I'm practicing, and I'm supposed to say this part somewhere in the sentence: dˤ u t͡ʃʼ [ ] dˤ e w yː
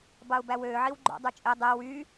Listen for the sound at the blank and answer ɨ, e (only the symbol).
e